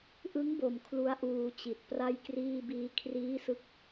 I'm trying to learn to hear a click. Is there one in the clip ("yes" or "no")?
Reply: no